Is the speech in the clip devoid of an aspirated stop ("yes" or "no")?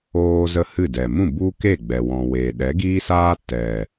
yes